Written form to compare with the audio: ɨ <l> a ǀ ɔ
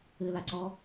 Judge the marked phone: correct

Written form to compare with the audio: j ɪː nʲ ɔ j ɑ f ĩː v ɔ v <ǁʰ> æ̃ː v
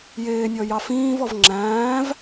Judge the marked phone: incorrect: ŋ͡ǁ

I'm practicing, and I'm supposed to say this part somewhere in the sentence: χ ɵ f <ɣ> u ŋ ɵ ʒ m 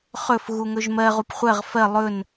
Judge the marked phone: correct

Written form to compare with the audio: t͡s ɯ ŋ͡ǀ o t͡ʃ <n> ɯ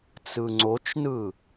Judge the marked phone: correct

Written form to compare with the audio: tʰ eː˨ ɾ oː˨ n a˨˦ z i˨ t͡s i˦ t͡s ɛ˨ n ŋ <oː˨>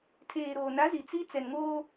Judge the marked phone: incorrect: oː˦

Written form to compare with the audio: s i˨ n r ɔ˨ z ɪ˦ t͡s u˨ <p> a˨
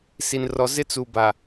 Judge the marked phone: incorrect: b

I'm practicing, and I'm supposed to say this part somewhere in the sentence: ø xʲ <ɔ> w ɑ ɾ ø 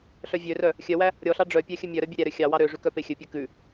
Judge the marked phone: incorrect: ɑ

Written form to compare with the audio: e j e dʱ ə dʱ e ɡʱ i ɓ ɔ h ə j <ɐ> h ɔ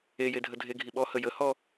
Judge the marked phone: incorrect: ə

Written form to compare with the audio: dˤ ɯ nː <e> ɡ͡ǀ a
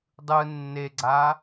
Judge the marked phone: correct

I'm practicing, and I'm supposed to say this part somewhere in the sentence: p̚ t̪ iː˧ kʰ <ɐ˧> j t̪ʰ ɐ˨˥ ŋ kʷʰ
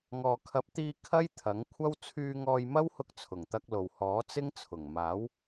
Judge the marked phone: incorrect: ɐ˥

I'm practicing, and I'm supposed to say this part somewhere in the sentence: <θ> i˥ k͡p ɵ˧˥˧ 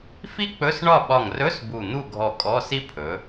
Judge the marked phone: incorrect: f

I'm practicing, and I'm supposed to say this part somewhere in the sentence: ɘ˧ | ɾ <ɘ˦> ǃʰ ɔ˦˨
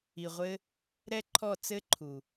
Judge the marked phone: incorrect: ɛ˦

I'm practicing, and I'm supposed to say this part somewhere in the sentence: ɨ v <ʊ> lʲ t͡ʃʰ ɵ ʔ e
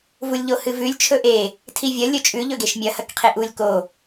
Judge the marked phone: incorrect: ʉ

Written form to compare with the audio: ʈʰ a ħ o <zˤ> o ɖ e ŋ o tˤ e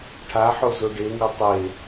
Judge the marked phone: incorrect: z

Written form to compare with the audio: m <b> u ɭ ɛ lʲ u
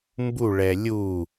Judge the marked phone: correct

